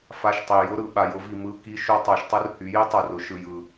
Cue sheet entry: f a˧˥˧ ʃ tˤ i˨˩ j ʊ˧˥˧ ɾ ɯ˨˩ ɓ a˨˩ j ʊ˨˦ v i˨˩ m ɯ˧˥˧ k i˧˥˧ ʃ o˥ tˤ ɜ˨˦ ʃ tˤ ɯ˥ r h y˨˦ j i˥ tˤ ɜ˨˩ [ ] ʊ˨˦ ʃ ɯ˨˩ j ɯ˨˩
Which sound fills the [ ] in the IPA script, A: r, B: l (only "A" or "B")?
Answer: A